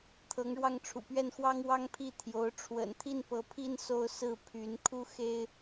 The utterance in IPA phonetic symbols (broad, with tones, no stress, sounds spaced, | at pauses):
t̪ʰ ɤ˧˥ ŋ ɻ w ɑ˥˩ ŋ ʈ͡ʂʰ ṵ˨˩ p ɥ ɛ˥˩ n x w ɑ˥ ŋ w ɑ˥ ŋ pʰ i˥˩ t̪ʰ j o˧˥ ʊ̯ ʈ͡ʂʰ w ə̰˨˩ n t̪ʰ i˥˩ n p ɤ˧˥ pʰ i˥˧ n s o˥˧ ʊ̯ s ɹ̩˥˩ pʰ y˧˥ n kʰ u˥ x e˥ ɪ̯